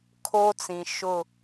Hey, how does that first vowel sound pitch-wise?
high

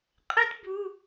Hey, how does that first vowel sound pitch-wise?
high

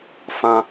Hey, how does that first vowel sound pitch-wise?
high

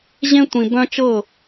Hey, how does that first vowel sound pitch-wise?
high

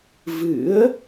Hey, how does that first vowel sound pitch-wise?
rising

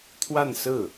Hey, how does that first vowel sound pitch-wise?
falling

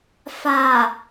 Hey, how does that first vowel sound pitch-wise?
low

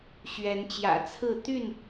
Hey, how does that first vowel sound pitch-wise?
rising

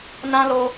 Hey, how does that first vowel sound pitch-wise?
high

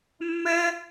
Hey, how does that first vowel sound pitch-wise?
high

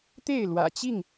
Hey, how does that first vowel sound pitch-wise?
falling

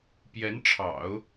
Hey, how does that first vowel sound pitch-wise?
rising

